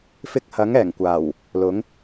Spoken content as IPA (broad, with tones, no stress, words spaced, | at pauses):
fɪ˧k̚hɐ˨˥ŋɛː˨˩ŋkʷaː˨˩w | lʊ˨˥ŋ